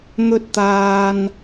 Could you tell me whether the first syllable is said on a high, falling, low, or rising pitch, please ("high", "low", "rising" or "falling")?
high